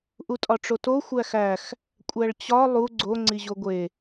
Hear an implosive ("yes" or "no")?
no